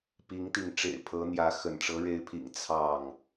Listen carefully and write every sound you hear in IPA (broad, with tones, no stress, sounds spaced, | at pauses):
p i˨˦ ŋ t̪ i˨˦ ŋ ʈ͡ʂ ḛ˨˩ ɪ̯ pʰ ɤ˨˦ n̪ j ä˨˦ x ə̰˨˩ n ʈ͡ʂ ɤ˨˦ ɻ e˨˦ ɪ̯ pʰ ḭ˨˩ ŋ t͡sʰ ɑ˥˨ ŋ